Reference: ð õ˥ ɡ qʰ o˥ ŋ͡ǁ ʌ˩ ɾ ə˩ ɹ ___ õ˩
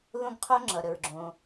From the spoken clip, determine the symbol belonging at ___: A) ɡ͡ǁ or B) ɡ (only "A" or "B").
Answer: A